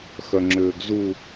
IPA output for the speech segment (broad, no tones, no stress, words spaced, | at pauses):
xœŋ͡ǁʏːɡzu